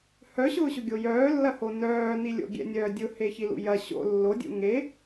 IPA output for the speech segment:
h œ ɕ ʊː ɕ ʊ ɡʲ o j œː lː ɐ h o n œː n i lʲ o̰ ɡʲ ɛ̰ nʲ œː dʲ ʊ h e ç i l ṵ j ɐ ɕ o̰ lː o dʲ ṵ ŋ e

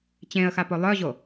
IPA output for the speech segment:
t͡ɕ ẽ ə̯ x a p o lˠ œ ʑ o

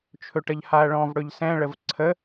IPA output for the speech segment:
t͡ʃʰ ɵ ʈ ə ʎ h a ɐ̯ ɭ ɔ̃ v ɽ ɵ ʎ s ɛ̃ ɭ ə v ǀʰ ə

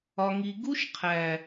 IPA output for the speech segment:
ɒ˨ ŋ i˨ ɡ u˦ ʃ qʰ æ˨

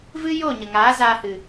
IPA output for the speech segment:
v ɨ˦ j o˦˨ ɲ ə˨ ŋ aː˨˦ z aː˧ h ɨ˨

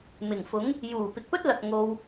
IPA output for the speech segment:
m ɪ˨˩ ŋ f ʊ˨˥ ŋ | j uː˨˩ p ɪ˨ k̚ p ɵ˥ t̚ l ɐ˨ k̚ ŋ o˧ w

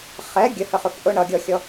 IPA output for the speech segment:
χ ɛ ɡʲ ə h ə χ ʊ f ʔ ʊ ɳ ʌ ɡʲ ɔ xʲ ɔ

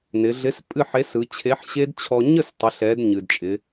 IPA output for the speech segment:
n ɪ˩˧ ɮ ɪ˨˥ s pʼ ɨ˥˨ ħ e˨˥ s ɯ˩˧ t͡ɕʰ e˨˥ ħ ɕ e˦˥ d t͡ɕʰ ɔ˧ ɲ ə˥˨ s tˤ ɪ˩˧ ɬ ɛ˩˧ d ɲ ɨ˩ d t͡ʃʼ ɪ˩˧

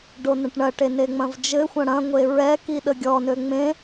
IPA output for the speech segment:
ɖ o n ə̃ ʈ ɳ ɐ ʈ e n e ŋ͡m ɐ̃ v d͡ʒ ɘ xʷ ɐ̃ ɽ ɐ̃ ŋʷ e ɹ ɛ k i ɗ ə ɡʲ ɔ n ø ŋ͡m ẽ

